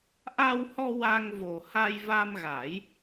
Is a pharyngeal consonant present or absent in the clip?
absent